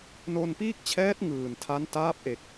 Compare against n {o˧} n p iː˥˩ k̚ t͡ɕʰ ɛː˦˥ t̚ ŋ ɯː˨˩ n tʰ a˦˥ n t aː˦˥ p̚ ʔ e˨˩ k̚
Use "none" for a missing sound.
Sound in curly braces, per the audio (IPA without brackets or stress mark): o˧